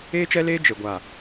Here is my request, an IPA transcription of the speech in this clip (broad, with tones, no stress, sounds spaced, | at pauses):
eː˦ t͡ʃ ɛ˦ l eː˦ d͡ʒ e˨ ɡʷ a˨